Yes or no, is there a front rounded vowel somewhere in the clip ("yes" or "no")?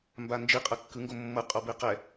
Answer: no